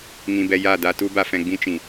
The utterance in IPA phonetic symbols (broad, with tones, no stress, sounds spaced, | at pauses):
ŋ ĩ˧ b ɛ˧ j a˦˨ d a˦ t u˦ b a˧ f ɛ̃˧ ɡ͡b ĩ˦ t͡ʃ ĩ˨